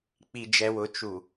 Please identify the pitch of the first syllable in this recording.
low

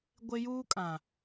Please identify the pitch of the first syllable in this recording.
high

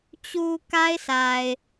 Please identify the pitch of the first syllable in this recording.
low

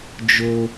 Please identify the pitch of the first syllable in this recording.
high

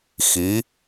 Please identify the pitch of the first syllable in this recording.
rising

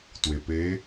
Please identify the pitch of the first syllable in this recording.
low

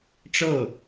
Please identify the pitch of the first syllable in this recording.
falling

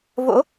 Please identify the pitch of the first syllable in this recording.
rising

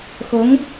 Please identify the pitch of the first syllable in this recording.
rising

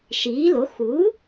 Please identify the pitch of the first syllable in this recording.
rising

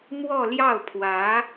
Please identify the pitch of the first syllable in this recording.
falling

